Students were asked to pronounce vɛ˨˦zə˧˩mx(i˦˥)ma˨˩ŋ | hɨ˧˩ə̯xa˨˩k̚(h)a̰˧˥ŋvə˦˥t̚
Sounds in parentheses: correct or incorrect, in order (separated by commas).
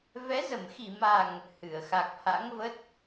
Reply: incorrect, correct